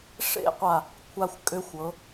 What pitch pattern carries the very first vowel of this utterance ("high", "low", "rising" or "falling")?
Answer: high